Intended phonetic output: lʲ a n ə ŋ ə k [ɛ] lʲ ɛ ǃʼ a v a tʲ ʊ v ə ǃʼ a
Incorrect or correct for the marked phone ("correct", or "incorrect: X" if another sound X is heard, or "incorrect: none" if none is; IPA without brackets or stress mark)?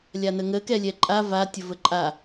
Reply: correct